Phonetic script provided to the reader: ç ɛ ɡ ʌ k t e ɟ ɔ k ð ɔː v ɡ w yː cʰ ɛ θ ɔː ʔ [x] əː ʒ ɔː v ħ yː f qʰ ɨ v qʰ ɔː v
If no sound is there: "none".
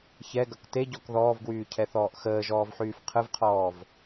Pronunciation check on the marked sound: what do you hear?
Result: x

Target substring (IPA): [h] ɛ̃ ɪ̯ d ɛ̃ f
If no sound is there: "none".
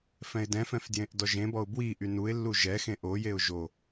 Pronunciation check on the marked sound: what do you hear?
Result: f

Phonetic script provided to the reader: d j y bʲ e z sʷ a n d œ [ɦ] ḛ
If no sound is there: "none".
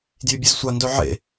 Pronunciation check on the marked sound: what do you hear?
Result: ʕ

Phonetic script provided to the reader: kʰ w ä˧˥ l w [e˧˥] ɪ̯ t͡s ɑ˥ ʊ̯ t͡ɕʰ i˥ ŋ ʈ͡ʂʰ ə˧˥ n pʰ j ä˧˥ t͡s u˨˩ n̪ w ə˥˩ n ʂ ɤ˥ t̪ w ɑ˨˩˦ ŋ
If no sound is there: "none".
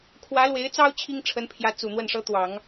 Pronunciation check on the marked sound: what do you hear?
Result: e˧˥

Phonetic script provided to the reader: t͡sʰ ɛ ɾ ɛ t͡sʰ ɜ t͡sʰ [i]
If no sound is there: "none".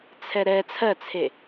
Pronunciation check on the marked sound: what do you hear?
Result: e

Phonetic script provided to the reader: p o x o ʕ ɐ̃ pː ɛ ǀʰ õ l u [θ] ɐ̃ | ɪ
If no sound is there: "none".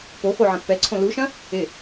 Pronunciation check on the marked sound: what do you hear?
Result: ʃ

